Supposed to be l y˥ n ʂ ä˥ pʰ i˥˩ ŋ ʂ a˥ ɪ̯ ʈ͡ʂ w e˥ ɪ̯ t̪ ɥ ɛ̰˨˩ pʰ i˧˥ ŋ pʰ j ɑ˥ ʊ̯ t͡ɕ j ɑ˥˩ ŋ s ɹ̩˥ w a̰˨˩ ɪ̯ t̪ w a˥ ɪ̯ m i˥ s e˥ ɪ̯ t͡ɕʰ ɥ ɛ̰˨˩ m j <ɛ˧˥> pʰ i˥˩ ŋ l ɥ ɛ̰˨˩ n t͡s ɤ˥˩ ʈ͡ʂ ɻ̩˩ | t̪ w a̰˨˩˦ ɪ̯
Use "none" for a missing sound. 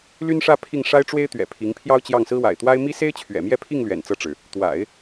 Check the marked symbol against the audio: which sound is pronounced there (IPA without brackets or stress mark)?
ɛ˥˧